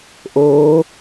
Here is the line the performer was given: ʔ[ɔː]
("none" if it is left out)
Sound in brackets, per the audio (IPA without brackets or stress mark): oː